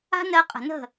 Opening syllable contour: high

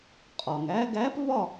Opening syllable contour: low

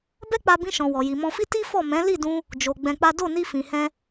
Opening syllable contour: high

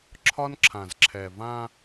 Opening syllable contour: high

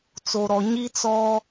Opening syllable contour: low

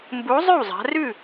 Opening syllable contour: rising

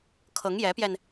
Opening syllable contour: rising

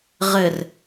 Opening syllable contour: low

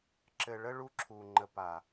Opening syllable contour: low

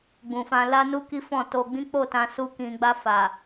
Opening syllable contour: low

